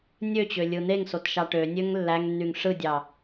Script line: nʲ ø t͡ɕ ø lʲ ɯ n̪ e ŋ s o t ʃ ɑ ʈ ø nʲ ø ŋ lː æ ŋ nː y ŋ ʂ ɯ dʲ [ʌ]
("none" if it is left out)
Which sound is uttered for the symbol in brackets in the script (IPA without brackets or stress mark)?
ɑ